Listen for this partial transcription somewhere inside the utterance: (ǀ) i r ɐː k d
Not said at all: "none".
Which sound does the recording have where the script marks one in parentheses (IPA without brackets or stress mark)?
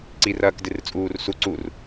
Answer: ǀ